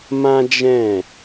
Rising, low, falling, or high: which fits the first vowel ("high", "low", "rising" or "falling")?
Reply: high